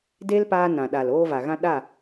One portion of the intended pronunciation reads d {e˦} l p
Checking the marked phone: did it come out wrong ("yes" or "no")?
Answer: no